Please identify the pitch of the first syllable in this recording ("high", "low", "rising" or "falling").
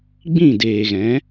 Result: falling